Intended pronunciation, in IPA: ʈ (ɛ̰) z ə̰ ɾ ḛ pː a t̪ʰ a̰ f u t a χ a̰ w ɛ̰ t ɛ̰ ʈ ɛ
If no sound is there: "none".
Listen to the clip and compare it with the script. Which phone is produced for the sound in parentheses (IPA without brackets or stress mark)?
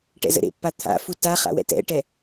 ɛ̰